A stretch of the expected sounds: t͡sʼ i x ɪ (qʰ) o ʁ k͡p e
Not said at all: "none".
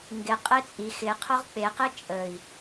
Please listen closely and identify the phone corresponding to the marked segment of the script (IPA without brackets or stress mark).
qʰ